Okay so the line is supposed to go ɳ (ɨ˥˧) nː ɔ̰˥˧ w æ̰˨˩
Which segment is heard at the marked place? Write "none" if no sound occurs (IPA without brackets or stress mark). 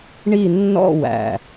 i˥˧